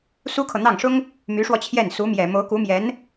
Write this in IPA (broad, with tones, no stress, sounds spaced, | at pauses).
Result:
s u˥ kʰ ɤ˨ n̪ ɑ˥˩ ŋ ʂ ʊ˥ ŋ | m y˧˥ ʂ w ɔ˧ t͡ɕʰ j ɛ˥˩ n s u˧˥ m j ɛ˨˩ m o˧˥ ʊ̯ k u˧˥ m j ɛ˧˥ n